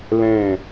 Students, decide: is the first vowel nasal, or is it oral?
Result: nasal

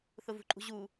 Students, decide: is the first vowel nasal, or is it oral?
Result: oral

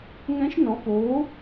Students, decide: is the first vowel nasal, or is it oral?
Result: nasal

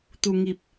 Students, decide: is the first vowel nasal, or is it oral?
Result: oral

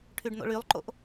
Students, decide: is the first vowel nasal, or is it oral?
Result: oral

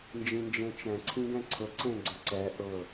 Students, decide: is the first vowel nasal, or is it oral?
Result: nasal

